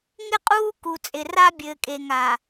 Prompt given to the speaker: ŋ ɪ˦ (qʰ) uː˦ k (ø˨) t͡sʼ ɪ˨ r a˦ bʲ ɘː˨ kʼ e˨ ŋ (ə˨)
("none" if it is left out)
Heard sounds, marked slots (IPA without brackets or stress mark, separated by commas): qʼ, u˨, a˨